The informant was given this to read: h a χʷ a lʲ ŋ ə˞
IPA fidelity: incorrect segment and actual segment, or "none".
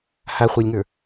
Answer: none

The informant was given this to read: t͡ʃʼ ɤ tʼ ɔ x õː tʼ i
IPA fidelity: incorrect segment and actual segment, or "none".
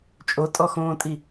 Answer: ɤ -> o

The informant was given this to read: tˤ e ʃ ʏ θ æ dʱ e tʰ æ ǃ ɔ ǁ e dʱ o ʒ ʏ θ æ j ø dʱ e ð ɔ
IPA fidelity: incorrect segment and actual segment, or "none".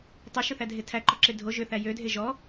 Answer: ð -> ʒ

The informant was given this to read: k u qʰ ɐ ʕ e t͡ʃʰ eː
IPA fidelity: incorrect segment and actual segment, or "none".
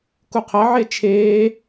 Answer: none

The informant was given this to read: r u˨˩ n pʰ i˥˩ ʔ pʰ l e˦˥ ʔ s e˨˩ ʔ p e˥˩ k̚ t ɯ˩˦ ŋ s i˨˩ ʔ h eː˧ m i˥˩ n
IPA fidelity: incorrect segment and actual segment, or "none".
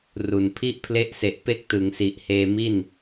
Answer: none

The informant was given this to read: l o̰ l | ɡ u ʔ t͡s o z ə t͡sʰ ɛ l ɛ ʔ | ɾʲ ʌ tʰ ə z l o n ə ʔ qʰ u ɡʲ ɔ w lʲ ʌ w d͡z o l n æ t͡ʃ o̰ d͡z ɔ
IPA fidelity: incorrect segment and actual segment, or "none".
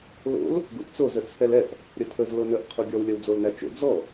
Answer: none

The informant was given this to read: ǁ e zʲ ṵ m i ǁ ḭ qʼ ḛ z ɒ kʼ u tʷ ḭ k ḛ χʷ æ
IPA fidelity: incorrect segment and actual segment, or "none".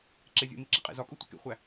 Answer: none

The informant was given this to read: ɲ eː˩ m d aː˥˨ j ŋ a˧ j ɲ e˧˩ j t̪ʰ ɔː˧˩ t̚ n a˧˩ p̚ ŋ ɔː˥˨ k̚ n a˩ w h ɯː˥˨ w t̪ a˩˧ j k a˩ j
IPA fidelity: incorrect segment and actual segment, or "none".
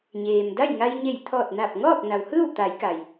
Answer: aː˥˨ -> a˥˨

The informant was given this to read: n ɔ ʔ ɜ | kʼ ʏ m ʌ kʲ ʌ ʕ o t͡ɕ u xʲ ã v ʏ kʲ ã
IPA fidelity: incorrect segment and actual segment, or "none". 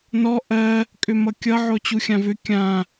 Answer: none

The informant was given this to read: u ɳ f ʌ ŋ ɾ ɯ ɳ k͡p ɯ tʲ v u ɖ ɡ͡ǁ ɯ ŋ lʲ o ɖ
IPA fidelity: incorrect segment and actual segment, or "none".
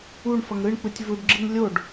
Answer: none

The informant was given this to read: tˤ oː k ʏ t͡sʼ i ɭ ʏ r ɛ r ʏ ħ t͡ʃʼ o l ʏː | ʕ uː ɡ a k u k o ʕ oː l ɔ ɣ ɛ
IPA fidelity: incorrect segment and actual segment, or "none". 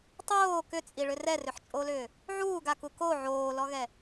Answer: none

